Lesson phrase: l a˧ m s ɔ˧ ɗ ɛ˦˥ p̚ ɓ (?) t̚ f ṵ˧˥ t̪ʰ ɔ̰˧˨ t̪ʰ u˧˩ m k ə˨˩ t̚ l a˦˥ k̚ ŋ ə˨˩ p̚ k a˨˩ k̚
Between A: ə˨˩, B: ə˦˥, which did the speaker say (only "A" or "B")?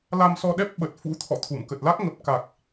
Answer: A